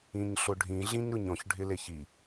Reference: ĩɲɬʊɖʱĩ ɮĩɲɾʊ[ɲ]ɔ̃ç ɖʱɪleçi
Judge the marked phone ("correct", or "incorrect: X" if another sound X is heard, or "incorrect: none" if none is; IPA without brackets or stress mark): correct